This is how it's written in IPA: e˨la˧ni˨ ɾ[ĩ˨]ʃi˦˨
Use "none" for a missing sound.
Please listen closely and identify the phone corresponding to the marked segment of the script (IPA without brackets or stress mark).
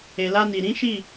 ĩ˨˦